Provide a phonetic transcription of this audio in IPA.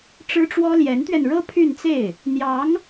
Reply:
ʈ͡ʂ ɻ̩˥ ʈ͡ʂ w ɔ˥ l j ɛ˧˥ n t̪ ɥ ɛ˧ n ɻ ɤ˥ pʰ y˥˧ n t͡s e˥˩ ɪ̯ | n̪ j ɑ˧˥ ŋ

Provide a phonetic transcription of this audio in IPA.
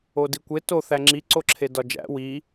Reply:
o d i kʷ e t o θ æ ŋ͡ǁ i ǀ o ǁʰ e d ɒ d͡ʒ æ̰ w i

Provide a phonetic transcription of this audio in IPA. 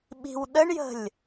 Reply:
ɓ i̤ w ɗ ə ɳ j ə̤ lʲ

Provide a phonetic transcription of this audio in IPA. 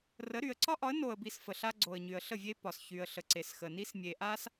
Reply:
r ə˨˦ ɾ y˨ ə̯ ǀ ɒ˦ ʔ ɒ˨˦ ə̯ n o˨ ə̯ b i˨ s f ə˨ ɬ a˦ ɡ͡ǀ o˨ ə̯ ɲ y˨ ə̯ ɬ ə˦˨ vʲ e˦ p ɒ˨ s ç y˨ ə̯ ɬ ə˨ ǀ e˨ s x ə˨ n i˦ s mʲ e˨ ʔ a˦ s

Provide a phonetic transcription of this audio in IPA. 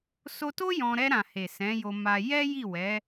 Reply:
s o˧ t o˦ j ɔ̃˧ ɾ ɛ˧ ɾ ã˨ h e˨ s ɛ̃˨˦ j o˧ m a˧ j ɛ˦ j i˦˨ w ɛ˨˦

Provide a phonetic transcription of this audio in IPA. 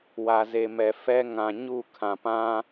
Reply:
w a˨ z e˨ m ɛ˨ f ɛ˦ ŋ ã˨ ɲ u˦˨ kʰ ã˨ p ã˦

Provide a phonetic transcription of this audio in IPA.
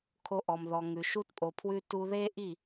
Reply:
kʰ o˧ ʔ ɔ˨ m ð ɔ˨ ŋ ʉ˨ ʃ u˦ t pʼ o˨ pʰ w ʉ˦ t u˧ ð e˦ ʔ i˦˨

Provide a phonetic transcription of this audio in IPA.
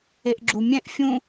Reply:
e ʔ ɡ͡ǁ u mʲ ɛ̃ ʔ fʲ ũ

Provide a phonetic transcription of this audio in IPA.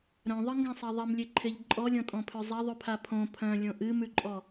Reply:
ɾ œ̃ ðˤ ɨ ŋ ɡ ã sˤ e ðˤ e m lʲ e ǃʰ e ʎ ǃʼ ɔ lʲ ɔ̃ tʼ ɔ̃ pʰ ø zˤ e ðˤ ʉ pʰ a pʰ õ pʰ œ̃ lʲ õ ʔ ɨ m ʉ ǃʼ ɔ

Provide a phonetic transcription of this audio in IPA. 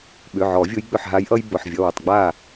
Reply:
ɓ ʏ˩˧˩ ʕ ɔ˨˩˦ vʲ ʊ˧˥ j ɡ͡b ʏ˧˩ ħ ɦ a˧˥ j ʔ ʌ˥ j b ʊ˩˧˩ ħ vʲ ʌ˩˧˩ w ʊ˧˩ tˤ ɡ͡b a˥˩

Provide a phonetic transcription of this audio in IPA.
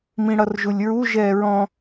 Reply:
m ĩ ɽ ʌ r ʒ u lʲ ɹ u ʒ ɛː ɹ ɔ̃

